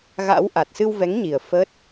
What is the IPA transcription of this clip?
ɣa̰˧˥w ʔa˨˩t̚sɨ˧wvɛ˨˦ŋɲi˨˩ə̯ fə˦˥t̚

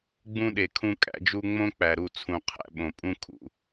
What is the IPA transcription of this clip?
ɡ͡bũ˦ɗe˨kʰũ˦ kʼæ̰˦d͡ʒu˦ ŋ͡mõ˦ k͡pæ˨ɾu˦˨t͡sʰũ˨ qʰæ̰˦ ɓõ˨ pʼũ˦kʰṵ˨

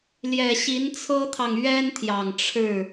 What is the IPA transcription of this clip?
ljɛ˨˩ɕi˧˥nt͡sʰɤ˥t̪ʰɑ˨ŋ ɥɛ˥nt̪ʰjɑ˨˩ŋ ʈ͡ʂʰɻ̩˥˩

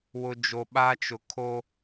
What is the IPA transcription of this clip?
wʊ˦d͡ʒo˦ ɓa˦t͡ʃʊ˨kʰo˦

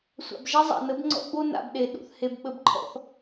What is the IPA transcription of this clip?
sʷa̰˨bʒɛ˦zˤa̰˨nə˨˦b ŋ͡ǀɔ̰˦ɡ͡bo˦ na̰˨bɗe˨ ɗṵ˨θhe˨b ɓə˨bǃʰɔ̰˨θ

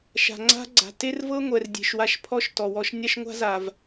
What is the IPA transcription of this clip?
ʃa̤˨ŋ͡ǀa̤˦ ɡ͡ǀa̤˨te˦rvɤ˦ŋʷɛ˨r dʲe̤˨ʃwa˧ʃpʰɔ˦ʃ tɔ˨wɔ˦ʃ nʲa˦ʃŋʷa̤˦za˨v

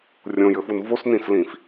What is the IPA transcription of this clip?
rʲõjɘfun vosnĩslĩf

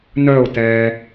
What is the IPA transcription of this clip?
nœʊ̯tɛː

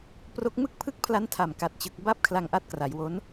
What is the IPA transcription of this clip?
pro˦˥k̚ mɯ˥˩k̚pʰɯ˥˩k̚pʰla˦˥ntʰa˨˩m ka˨˩t̚t͡ɕɯ˨˩k̚ ba˦˥p̚ kʰla˧ŋʔa˦˥t̚kra˩˦jwo˦˥n

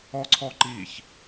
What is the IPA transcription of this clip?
ɔǀʰɔǃiç

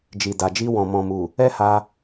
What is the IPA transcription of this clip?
d͡ʒi˨da˨d͡ʒi˧wɔ̃˨ mɔ̃˨mu˨ | ɛ˦ha˧

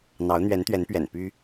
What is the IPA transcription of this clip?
n̪ɑ˧˥ʊ̯ n̪ɥɛ˧˥nt̪ɥɛ˧˥npɥɛ̰˨˩n py˥

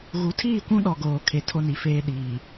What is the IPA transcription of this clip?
ɣu˨˦tʰiː˦˨kʷũ˦ ɗɔ˨ɡoː˨ kʰe˨tʰo˦ni˨feː˦ ɗiː˨

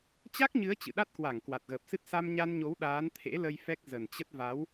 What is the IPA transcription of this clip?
t͡ɕa˦˥k̚ɲɨ˨˦ə̯ t͡ɕɨ̰˧˨ɗa˦˥t̚kwa˧˩ŋ kwa˨˩t̚ɣəː˨˩p̚sɨ˦˥t̚ sa˧mɲa˧nɲo˨˦w ɗaː˨˦nt̪ʰḛ˧˥lə˧j fɛ˦˥k̚ zə˨˩nt͡ɕə˦˥t̚ va˨˦w

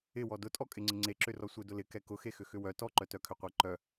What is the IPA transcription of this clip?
ɪwɔ dʊtʼɔkʼɪŋ͡ǀɪ ŋ͡ǀeǁʏrɔ sʷedʊlɪ kɛkʊxe xʏxʏwœ tɔǃœtœkʰʏ qʷɛǃœ

